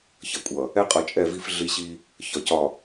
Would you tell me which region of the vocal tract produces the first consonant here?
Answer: palate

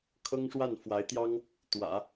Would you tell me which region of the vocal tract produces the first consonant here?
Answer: velum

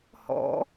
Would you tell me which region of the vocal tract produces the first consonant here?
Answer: throat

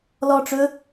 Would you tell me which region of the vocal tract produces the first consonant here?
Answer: tongue tip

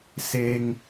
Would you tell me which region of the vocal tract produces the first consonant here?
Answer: tongue tip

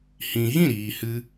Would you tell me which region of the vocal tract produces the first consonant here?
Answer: throat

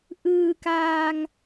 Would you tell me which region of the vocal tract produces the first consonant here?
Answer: throat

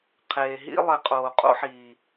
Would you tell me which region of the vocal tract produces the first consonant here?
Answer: uvula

